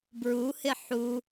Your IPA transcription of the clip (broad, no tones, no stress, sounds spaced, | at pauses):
b ɹ u h ɪ ħ u